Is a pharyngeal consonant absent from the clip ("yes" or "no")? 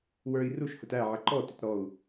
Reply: no